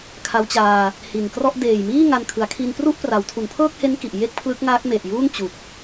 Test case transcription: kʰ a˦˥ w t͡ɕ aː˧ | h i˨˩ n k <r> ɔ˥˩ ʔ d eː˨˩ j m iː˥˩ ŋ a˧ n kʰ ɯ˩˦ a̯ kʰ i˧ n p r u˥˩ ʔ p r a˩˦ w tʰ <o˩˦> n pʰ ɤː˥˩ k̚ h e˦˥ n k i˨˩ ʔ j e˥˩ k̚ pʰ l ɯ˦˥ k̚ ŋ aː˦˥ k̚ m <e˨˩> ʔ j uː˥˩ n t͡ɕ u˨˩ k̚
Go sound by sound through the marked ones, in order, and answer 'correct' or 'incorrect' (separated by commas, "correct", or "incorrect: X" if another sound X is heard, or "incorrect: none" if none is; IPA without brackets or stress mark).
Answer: correct, incorrect: u˩˦, correct